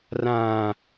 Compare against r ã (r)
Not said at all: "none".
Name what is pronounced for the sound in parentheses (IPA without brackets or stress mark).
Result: none